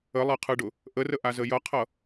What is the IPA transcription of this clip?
ə lˠ ɛ qʰ ɯ ɖ ʊ | ʔ ə r ə ʔ a z ə j ʌ qʰ ʌ

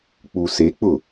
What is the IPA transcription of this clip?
k͡p u s e k͡p ʊ

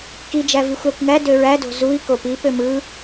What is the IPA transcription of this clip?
k i d͡ʒ æ v i xʷ æ kʷ ŋ æ d ø ɹ æ d o̤ z u i̯ k o p i p ø m ɯ

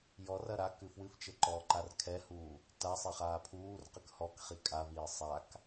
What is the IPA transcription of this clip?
j ɔ r ɐ ɾ a k ɨ f w ɨ f t͡ʃ ɘ ǃ ɔː ǃ a r kʰ ɛ h uː | t a sˤ e χ aː pʰ uː r q ɨ k h ɔ k χ i kʼ a v iː sˤ a k

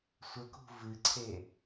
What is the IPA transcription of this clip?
sʷ ə k ṳ v ɨ ǀʰ e

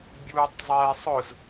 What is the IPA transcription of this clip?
bʲ uː tˤ zˤ ɛː sˤ ʊ z

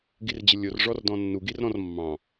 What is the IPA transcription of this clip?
ɡ i r d͡ʑ ə lʲ o r ʐ ɔ r d ɔ̃ nː u ɡ i r ɾ ɔ̃ r mː ɑ̃

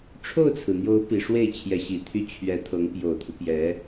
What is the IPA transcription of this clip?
ʈ͡ʂʰ o˥˩ ʊ̯ t͡sʰ ɹ̩˩ n̪ j o˧˥ ʊ̯ p i˨˩ ʂ w e˥˩ ɪ̯ t͡ɕʰ j ɛ˧˥ ɕ i˨˩ t̪ʰ y˥ t͡ɕʰ ɥ ɛ˧˥ t̪ʰ ɤ˧˥ ŋ p j o˨˩ ʊ̯ t̪ʰ u˦ p j ɛ˧˥

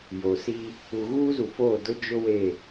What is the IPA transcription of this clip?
j o˨ s iː˦ | u˨ ɣ uː˦ z u˨ f oː˦˨ d ʊ˦ d͡ʒ ʊ˦ w e˦˨

